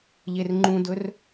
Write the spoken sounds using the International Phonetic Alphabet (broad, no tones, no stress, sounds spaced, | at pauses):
ʎ e r ŋ͡ǃ ũ d ɵ r